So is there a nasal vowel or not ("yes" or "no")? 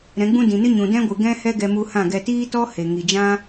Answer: yes